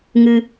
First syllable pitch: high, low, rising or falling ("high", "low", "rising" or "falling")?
high